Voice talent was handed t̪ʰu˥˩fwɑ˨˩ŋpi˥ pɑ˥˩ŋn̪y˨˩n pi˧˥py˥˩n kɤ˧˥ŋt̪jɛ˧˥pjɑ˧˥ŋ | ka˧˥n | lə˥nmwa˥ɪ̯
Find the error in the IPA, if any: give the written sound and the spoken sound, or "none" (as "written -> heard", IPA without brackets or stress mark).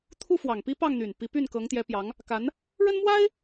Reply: l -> ɻ